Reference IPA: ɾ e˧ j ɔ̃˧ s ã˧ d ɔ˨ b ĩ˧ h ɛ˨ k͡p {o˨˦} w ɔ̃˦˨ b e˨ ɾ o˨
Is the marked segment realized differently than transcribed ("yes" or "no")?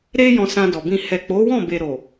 no